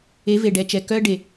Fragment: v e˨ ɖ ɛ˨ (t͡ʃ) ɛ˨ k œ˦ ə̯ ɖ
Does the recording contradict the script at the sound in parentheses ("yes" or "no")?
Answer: no